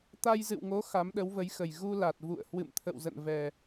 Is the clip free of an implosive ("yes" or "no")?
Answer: no